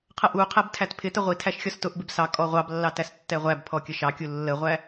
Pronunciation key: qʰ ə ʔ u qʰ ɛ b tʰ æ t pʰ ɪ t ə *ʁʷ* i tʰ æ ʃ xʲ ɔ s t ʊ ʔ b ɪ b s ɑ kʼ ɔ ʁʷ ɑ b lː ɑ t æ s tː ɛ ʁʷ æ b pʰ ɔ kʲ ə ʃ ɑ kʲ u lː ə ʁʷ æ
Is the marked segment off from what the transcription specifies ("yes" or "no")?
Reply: no